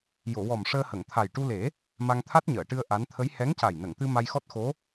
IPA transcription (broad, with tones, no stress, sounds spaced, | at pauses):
j o˨˩˨ w ɔ˨˩ m ʂ əː˧ h ə˨˩˨ ŋ t̪ʰ a˨˩ j ʈ u˧ l e˨˩˦ | m a˧ ŋ t̪ʰ a˦˥ t̚ ɲ əː˨˩˨ ʈ ɨ˧ ə̯ ʔ a˧˥ n t̪ʰ ə˧˥ j h ɛ˧˥ ŋ c a˨˩ j n ə˨˩˨ ŋ t̪ ɨ˧ m a˧ j x ɔ˦˥ t̚ x o˧˥